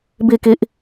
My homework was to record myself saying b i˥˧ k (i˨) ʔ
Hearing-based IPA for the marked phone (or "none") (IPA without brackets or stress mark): i˦